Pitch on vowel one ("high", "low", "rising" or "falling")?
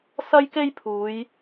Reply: high